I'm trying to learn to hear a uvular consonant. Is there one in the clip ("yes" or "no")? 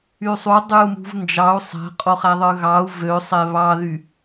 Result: yes